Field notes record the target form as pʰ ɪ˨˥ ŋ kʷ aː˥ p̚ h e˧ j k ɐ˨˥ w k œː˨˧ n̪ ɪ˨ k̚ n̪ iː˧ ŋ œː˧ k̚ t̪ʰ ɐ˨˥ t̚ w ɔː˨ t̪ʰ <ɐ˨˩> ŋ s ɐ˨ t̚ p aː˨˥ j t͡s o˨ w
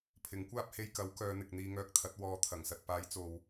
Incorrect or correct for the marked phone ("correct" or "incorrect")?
correct